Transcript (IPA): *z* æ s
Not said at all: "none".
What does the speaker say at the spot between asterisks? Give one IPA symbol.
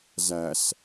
z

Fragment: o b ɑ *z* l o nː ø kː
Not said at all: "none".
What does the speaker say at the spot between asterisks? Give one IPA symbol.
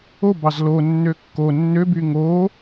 z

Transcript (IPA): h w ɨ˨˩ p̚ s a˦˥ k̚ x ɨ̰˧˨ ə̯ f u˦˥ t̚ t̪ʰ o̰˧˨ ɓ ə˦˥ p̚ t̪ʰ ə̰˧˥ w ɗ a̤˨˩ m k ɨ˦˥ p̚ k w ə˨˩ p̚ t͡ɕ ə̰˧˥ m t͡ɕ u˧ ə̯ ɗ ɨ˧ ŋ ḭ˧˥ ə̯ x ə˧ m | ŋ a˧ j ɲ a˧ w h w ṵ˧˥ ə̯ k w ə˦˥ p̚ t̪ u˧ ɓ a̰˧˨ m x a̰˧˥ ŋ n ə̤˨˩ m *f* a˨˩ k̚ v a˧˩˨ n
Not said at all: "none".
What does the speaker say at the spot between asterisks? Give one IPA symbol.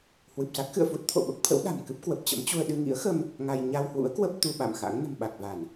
ɓ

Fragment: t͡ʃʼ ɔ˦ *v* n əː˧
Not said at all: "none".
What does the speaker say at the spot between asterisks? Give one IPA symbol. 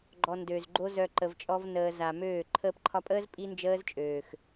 v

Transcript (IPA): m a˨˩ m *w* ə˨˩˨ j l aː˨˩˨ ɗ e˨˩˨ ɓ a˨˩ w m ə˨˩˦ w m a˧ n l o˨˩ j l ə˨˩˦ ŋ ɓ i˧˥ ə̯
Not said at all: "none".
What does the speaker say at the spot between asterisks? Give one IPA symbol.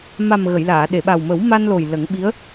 ɣ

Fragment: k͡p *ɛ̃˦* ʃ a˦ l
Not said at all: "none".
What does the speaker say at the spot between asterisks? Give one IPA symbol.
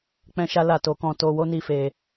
ɛ̃˦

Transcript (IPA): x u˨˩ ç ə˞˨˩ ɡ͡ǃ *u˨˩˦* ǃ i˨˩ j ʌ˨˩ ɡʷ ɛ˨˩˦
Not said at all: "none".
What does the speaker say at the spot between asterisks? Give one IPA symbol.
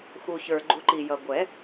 u˨˩˦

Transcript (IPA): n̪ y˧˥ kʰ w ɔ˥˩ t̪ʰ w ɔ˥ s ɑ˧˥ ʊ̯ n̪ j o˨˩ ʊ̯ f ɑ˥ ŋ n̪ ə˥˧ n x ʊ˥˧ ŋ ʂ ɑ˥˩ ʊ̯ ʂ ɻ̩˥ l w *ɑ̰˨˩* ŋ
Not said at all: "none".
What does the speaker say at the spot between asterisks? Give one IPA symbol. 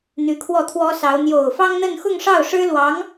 ɑ˧˥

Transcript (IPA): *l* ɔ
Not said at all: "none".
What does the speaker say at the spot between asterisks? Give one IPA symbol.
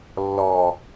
lː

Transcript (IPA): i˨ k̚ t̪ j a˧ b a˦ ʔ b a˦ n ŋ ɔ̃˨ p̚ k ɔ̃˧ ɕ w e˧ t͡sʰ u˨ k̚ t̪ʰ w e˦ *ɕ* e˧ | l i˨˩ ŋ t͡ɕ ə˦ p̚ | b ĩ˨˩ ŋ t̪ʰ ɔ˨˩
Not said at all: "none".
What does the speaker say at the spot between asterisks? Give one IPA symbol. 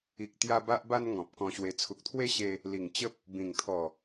ɕ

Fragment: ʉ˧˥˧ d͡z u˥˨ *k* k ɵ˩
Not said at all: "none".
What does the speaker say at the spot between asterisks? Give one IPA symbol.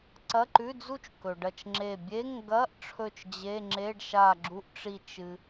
t͡ʃ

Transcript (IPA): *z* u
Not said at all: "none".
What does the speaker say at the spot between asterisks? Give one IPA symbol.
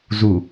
z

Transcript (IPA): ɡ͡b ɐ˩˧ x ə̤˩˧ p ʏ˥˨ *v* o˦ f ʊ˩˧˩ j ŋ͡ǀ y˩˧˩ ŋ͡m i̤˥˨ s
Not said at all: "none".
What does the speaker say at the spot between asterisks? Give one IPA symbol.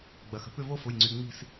v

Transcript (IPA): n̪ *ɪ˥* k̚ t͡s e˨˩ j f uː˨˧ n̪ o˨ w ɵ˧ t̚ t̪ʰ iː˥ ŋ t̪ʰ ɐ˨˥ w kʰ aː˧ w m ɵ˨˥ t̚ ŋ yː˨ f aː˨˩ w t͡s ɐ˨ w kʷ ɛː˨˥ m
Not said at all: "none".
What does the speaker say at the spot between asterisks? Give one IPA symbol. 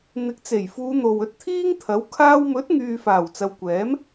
ɪ˨˥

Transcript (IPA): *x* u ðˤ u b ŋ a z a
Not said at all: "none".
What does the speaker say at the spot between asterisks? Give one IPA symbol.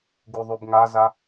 ɡ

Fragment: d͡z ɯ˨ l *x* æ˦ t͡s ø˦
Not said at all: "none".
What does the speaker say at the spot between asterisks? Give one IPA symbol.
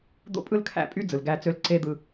ɡ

